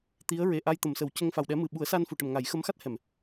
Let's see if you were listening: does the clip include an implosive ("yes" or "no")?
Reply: yes